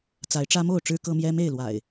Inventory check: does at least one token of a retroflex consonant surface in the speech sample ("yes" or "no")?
yes